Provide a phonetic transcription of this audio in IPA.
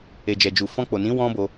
e˨ d͡ʒ ɛ˨ d͡ʒ u˨ f ɔ̃˧ k͡p o˨ n ĩ˨˦ w ɔ̃˦ b o˧

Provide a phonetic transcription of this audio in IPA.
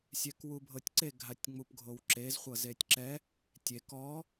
sʲ ɛ k w u bʱ ɤ tʲ ǀ e ɡʱ a tʲ ŋ͡m u p ɡʱ o w ǁ e z χʷ ɤ z e tʲ ǁ ɛ | tʲ e k ɔ

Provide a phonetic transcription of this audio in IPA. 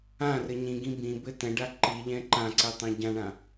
ã r ɘ ɲ ĩ ɡ ĩ b ĩ b ɘ t ɛ̃ ɖ a ǃ i ʎ ɛ̃ ǃ ã ǀ ɛ tˤ ɛ̃ ɟ ã ɳ ã

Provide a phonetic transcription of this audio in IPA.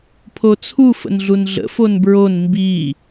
pʰ o t͡sʰ u f ə̰ n ɮ u n ɮ ə̰ f o n b ɹ o n m b i

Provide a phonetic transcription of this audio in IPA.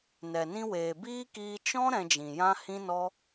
n ɛ˨ n ĩ˧ w eː˨ b iː˦ k iː˧ t͡ʃ ɔ̃˦ ɾ ɛ̃˧ d͡ʒ ĩ˨ j ã˦ h ĩ˦ n ɔ˦

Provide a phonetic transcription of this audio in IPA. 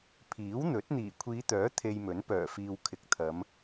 pʰ iː˨˥ w n̪ ɵ˨˥ t̚ n̪ iː˨˩ kʷʰ iː˨˧ t̪ œː˨˥ t̪ʰ e˧ j m ɵ˨˥ n p œː˨˩ f iː˨ w kʰ ɪ˨ k̚ t̪ʰ ɐ˨˧ m

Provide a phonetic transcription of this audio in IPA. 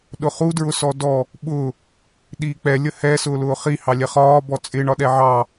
ɗ ʊ χ u d ɹ ʊ s ɔ d ɔ | ɓ ʊ | ɗ iː k͡p ɛ lʲ ə h ɛ s ʊː l ʊː χ i h ɑ lʲ ɛ χ ɒː b ɔ t͡sʼ ɪ ɳ ɒ ɗ ɛ ʕ ɑ

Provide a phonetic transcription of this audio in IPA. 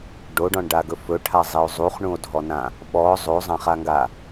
ɖ o ɖ ɔ̃ ɳ ɖ a ɡ ɵ f ɵ ʈʰ a zˤ i o̯ zˤ u χ ɳ ũ o̯ dʱ ɔ n ã | ɓ ɔ zˤ o zˤ ã χ a ŋ ɡ a

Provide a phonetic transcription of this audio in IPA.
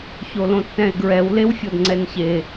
ç o l õ tː ɛ̃ e̯ ɡ ɹ ɛ w l e w fʲ o d ŋ͡ǀ ɛ n ç e

